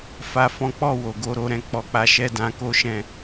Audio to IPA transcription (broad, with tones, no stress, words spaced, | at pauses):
fa˨fɔ̃˨˦k͡pɔ˦˨ wo˨ɡo˧ɾo˧ɾɛ̃˧ k͡pɔ˧k͡pa˧ʃɛ˦ dã˧ko˦ʃɛ̃˦˨